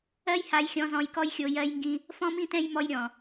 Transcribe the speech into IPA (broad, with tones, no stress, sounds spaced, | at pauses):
ɜ˦ j h a˧ j xʲ ɔ̃˧ z ɔ̃˧ j k ɔ˦ j xʲ o˧ j ɜ˧ j ŋ ɡ ĩ˧ | f ɔ̃˦ m ĩ˦ t ɛ̃˦ j m ɔ˦ j ɾʲ ɔ̃˨